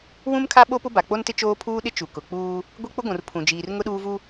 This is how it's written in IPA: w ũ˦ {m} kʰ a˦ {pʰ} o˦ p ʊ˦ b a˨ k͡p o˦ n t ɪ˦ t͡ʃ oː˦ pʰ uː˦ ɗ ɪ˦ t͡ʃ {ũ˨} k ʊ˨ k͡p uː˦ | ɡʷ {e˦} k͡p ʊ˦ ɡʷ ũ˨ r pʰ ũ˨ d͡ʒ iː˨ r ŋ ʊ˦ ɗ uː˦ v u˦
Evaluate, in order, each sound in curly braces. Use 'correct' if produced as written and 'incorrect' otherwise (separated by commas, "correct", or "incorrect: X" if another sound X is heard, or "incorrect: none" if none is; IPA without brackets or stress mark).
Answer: correct, incorrect: ɓ, incorrect: u˨, correct